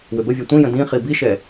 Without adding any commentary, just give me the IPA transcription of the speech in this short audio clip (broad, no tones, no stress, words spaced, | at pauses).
wʏbəvʲæ tʷĩjə̃ dĩχi biʃɛ